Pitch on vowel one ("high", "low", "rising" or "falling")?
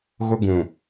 high